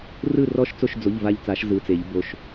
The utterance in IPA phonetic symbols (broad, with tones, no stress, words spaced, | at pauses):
rɯ˦˨rɔ˦˨ʃt͡so˦˨ʃd͡zo˩˧˩ʎ va˦˨ʎt͡sa˨˩˦ʃ zɯ˩˧˩t͡se˨˩˦ʎ bo˩˧˩ʃ